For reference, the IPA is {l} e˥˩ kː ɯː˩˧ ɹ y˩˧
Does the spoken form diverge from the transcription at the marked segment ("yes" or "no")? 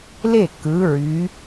no